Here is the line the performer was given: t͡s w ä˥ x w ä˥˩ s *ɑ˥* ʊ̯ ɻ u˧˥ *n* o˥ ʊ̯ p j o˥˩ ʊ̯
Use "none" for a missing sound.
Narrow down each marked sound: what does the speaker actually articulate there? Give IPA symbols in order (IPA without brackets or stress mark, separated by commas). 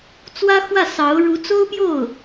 ɑ˧˥, t͡s